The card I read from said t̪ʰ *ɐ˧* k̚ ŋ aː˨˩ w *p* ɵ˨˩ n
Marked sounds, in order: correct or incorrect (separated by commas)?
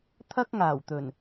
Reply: incorrect, incorrect